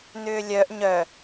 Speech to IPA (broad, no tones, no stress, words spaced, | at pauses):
n̪ʏːlʲœʔ ɲœ